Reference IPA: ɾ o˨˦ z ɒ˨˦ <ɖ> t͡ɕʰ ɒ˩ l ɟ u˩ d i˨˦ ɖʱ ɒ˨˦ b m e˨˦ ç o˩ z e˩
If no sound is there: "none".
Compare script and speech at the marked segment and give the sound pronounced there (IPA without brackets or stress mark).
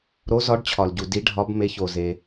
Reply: ɖ